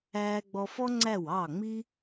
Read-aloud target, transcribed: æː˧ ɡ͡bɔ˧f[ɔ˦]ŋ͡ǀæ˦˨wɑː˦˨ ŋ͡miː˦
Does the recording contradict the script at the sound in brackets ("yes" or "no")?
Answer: no